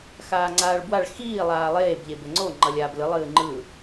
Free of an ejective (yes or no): yes